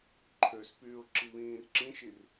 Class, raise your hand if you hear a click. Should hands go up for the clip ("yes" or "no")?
yes